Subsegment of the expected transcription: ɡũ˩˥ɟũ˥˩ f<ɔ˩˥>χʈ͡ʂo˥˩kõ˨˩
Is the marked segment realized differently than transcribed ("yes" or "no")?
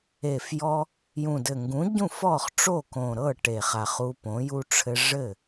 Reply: yes